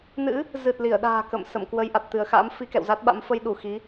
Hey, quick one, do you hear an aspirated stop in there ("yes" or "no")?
no